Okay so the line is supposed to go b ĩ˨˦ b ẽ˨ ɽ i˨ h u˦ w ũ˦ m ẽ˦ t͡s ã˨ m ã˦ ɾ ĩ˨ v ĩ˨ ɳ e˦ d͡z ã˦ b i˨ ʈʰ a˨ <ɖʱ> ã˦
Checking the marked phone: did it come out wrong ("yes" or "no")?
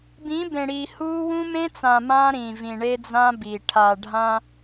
no